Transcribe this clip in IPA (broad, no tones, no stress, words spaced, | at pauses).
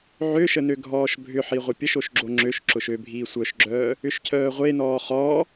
ʕøʃə nøɡʱɔːʃbʱʏħi ʁʷəpʲəʃoʃ ɡ͡ǁoŋ͡ǁøʃǁʊʃ øbʱiː sʷœʃɡ͡ǁœː | ʏʃcʰœːʁʷenɔː χɔː